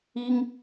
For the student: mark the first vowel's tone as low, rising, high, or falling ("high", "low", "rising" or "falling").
high